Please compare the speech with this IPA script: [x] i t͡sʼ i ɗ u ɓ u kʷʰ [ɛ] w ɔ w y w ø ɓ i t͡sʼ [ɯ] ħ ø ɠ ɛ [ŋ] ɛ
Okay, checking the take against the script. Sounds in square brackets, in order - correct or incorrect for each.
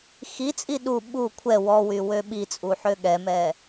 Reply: correct, correct, incorrect: u, incorrect: m

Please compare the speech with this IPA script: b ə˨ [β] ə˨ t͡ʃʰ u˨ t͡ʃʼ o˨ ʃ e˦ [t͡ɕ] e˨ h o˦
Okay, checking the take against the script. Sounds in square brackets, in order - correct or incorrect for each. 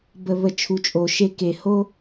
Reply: correct, incorrect: k

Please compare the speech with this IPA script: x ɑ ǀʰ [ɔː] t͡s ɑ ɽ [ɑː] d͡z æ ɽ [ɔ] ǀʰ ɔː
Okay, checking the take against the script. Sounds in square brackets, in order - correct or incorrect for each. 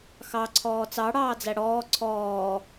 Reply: correct, correct, incorrect: ɔː

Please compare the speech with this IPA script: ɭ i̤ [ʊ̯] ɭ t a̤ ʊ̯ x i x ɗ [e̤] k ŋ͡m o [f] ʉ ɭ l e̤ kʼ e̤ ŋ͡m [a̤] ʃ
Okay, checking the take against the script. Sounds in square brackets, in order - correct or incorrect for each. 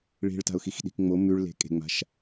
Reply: incorrect: none, incorrect: i̤, incorrect: m, correct

